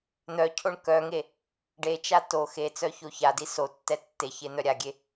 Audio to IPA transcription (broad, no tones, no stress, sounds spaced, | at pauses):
n̪ œ cʰ o ɳ k œ ŋ e | ɖ e t͡ʃ a t o x e t͡s œ ç o ç a d i s o tː ɛ tː e ç e n̪ œ ɾʲ a ɡʲ e